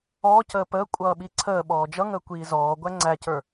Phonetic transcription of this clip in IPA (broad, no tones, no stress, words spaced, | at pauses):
ɔːcəː pəː kʷʼʌːɓiǀʰəː ɓɔːd͡ʒʌ ŋəːkʷiːzɔː ɡʷæŋ͡ǀæcə˞